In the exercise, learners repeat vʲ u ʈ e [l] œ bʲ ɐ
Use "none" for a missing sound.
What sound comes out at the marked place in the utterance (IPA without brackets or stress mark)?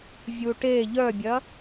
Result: ʎ